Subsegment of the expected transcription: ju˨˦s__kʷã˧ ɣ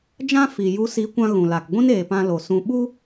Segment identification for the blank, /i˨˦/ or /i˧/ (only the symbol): i˨˦